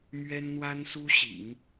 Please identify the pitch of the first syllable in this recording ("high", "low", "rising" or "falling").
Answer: high